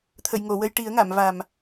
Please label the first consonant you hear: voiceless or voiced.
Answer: voiceless